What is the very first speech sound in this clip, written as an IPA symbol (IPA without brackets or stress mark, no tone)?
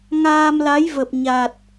ŋ